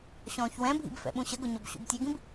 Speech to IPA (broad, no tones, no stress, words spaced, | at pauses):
ɕɔ̃ːçwɛ̃bʱḭb fɛ̰ɓũɕəɡʊ ɲɔbɕṵbtʲɛɡĩb